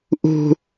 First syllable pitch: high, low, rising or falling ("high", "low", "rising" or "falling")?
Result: high